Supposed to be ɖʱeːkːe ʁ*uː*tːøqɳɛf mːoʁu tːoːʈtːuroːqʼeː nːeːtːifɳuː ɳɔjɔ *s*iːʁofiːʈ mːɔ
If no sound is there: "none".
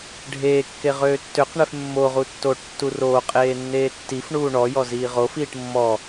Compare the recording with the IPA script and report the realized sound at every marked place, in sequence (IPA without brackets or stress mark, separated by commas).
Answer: øː, z